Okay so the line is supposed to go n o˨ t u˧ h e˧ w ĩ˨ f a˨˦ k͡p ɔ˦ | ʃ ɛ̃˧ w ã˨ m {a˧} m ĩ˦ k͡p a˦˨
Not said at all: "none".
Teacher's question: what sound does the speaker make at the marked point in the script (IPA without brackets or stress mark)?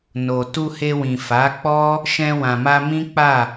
a˧